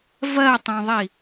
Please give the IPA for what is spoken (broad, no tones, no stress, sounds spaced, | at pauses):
v ɜ tˤ œ̃ ðˤ i